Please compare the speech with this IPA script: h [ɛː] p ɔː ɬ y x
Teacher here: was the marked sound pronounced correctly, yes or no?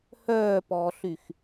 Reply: no